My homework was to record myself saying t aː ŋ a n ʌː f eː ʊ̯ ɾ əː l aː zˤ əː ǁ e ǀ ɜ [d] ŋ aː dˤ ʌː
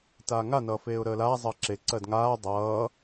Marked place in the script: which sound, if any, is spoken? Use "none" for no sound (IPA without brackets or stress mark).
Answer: d